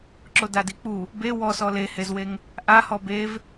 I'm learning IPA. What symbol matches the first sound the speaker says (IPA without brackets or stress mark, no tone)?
ǁ